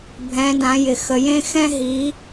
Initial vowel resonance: nasal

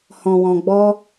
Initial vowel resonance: nasal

